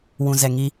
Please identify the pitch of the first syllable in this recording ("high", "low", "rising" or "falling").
low